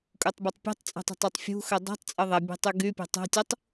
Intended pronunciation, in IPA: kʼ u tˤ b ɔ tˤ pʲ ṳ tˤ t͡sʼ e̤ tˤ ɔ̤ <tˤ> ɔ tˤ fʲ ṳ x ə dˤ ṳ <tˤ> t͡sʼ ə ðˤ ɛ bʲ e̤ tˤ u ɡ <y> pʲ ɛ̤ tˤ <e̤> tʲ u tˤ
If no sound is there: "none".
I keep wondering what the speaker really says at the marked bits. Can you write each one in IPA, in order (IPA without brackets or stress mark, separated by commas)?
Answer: tˤ, tˤ, y, ɛ̤